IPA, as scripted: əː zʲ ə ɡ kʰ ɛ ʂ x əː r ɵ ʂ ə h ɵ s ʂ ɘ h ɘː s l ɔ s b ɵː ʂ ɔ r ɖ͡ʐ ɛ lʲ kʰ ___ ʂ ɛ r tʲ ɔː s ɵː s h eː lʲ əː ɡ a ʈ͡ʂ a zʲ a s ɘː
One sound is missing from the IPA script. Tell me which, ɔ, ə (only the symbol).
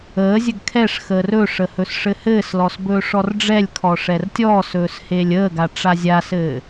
ɔ